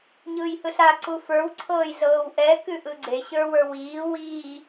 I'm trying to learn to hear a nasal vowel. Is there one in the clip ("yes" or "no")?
no